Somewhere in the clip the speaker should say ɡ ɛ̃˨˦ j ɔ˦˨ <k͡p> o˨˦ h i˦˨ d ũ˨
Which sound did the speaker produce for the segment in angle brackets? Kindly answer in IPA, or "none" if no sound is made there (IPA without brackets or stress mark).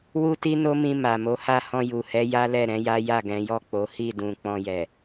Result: k͡p